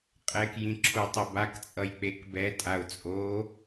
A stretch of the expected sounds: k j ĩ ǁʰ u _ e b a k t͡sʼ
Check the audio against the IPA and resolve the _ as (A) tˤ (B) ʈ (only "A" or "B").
A